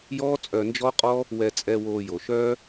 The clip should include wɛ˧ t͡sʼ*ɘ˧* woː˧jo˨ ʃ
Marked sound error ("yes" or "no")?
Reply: yes